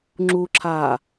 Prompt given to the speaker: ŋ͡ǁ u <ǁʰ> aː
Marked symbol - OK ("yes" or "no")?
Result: yes